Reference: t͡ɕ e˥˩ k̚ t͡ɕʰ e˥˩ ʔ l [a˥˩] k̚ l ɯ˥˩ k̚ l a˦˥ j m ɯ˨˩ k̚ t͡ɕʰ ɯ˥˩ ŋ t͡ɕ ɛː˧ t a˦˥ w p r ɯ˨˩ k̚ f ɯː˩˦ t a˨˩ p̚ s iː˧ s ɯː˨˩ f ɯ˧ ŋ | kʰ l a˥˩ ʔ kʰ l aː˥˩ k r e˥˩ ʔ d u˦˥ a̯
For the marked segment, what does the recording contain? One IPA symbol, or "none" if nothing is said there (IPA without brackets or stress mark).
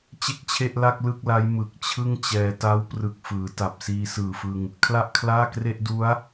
a˥˩